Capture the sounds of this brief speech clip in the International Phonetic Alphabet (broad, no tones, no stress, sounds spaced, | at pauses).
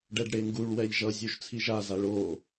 ɖ ɛ ɖ ɽ e ŋ ɡ u ɭ w ɛ ʎ ʒ ʌ zʲ o ʒ t͡sʰ i ʒ a z a ɭ o